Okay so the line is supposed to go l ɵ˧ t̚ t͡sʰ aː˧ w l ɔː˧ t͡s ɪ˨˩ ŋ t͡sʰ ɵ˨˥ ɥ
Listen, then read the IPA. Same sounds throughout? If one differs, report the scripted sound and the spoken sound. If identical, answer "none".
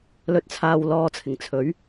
t͡s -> t͡sʰ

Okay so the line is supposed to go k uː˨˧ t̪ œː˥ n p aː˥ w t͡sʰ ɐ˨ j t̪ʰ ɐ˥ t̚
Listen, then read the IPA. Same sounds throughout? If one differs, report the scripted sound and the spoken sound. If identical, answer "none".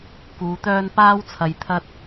none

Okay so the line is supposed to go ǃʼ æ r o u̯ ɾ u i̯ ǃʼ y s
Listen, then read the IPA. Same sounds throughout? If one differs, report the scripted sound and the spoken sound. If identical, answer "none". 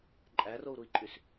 none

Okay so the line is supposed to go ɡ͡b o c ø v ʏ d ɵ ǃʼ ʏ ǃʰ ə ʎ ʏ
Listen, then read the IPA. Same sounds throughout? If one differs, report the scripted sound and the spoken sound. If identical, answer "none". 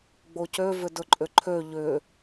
ə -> ø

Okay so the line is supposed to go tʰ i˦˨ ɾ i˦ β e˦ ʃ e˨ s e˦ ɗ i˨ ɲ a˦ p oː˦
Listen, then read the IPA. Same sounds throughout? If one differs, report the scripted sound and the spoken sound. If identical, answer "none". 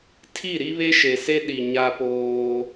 none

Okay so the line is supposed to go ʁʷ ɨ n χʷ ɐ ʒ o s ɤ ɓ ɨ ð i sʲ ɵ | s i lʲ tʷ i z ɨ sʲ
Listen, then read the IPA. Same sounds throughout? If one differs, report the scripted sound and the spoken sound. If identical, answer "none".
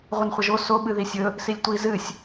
ɤ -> o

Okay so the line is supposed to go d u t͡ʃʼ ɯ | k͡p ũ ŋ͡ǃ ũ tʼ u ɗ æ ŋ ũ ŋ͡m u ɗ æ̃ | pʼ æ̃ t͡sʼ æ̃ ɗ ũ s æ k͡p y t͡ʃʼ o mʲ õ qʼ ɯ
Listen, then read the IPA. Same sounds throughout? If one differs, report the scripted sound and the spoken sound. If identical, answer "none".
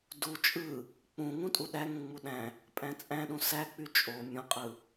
ŋ͡ǃ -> ŋ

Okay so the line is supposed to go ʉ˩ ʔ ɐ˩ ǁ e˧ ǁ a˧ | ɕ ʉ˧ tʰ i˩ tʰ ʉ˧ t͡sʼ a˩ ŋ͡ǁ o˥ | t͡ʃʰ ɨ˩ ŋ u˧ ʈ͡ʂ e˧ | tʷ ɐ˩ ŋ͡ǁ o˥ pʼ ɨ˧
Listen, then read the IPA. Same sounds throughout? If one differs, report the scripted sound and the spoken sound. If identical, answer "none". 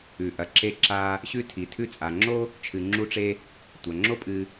ŋ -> ŋ͡ǁ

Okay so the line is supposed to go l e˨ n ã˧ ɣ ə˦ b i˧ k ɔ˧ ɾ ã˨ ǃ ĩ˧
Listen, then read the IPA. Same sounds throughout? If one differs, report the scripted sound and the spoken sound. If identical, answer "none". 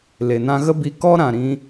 ǃ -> ɾ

